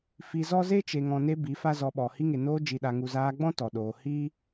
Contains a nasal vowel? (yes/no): yes